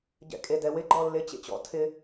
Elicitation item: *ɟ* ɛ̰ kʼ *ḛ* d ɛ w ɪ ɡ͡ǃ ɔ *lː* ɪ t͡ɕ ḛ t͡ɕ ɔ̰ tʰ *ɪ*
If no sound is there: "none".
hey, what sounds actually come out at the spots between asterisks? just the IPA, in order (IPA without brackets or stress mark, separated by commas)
ɟ, e, lː, ɪ